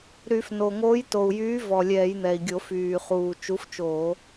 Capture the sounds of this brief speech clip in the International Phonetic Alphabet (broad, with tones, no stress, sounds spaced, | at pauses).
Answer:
ɾ y˧˩˧ f n o˨˩ ŋ oː˨˥ j t o˨˩ u̯ j yː˨˥ v ɔ˨˩ lʲ ɛː˧˩˧ j n̪ ɛ˨˩ i̯ ɡʲ o˧˩˧ f yː˨˩ χ uː˨˩ t͡ʃ u˨˥ f t͡ʃ oː˧˩˧